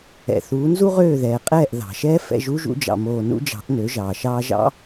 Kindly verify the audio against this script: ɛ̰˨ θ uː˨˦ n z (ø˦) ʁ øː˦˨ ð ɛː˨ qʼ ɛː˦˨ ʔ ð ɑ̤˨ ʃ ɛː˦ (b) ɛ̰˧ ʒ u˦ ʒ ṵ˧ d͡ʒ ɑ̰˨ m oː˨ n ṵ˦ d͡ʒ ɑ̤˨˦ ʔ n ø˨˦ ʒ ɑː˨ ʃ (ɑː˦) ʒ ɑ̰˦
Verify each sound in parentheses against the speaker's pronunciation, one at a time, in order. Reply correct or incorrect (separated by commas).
incorrect, incorrect, incorrect